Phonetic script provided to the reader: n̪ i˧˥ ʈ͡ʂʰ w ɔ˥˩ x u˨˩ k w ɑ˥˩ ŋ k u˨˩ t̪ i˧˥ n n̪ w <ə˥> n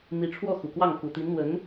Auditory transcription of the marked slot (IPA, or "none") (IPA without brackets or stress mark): ə˧˥